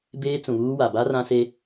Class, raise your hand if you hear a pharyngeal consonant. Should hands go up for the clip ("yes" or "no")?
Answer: no